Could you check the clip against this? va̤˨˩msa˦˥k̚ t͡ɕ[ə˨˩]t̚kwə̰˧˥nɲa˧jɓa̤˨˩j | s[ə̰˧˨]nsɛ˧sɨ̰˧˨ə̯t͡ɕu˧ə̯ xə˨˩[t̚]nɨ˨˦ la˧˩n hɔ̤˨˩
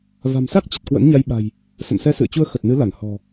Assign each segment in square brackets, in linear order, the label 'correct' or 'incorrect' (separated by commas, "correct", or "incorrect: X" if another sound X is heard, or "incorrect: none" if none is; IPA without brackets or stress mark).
correct, correct, correct